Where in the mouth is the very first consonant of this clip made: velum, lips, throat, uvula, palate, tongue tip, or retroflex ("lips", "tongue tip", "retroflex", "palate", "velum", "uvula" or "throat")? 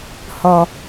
throat